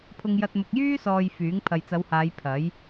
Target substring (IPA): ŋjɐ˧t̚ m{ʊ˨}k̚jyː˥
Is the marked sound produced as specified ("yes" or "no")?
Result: yes